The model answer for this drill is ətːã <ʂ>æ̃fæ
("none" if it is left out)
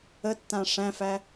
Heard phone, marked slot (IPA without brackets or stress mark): ʂ